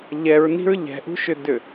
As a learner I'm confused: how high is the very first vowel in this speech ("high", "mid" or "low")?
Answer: mid